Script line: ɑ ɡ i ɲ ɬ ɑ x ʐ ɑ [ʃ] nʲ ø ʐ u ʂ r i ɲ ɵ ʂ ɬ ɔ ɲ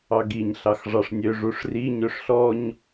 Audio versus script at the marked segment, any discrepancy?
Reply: yes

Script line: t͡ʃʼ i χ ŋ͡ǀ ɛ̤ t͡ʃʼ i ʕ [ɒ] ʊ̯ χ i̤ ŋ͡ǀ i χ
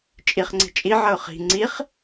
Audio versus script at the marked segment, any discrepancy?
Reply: yes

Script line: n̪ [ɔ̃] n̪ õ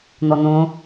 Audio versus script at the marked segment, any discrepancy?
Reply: yes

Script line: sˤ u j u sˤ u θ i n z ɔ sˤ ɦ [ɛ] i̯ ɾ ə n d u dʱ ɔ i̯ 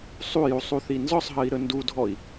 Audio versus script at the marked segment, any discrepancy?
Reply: yes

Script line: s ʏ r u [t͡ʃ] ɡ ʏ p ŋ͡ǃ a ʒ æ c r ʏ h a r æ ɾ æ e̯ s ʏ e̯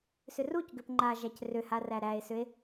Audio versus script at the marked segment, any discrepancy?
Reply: yes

